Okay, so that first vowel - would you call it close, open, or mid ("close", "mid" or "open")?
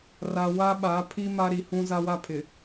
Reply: open